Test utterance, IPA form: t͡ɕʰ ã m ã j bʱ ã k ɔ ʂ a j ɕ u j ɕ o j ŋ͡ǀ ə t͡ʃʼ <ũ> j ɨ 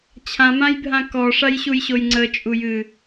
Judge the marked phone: incorrect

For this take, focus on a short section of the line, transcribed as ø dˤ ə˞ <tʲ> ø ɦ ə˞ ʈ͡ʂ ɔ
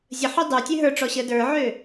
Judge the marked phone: correct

